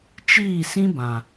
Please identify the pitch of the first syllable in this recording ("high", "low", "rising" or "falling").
falling